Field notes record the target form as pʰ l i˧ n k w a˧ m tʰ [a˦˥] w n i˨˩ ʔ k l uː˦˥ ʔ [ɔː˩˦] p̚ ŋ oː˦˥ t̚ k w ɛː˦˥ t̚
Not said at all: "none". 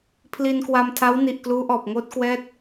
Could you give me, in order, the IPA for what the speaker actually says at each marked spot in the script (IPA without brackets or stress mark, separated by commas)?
a˦˥, ɔː˨˩